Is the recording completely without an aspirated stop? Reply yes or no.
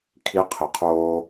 no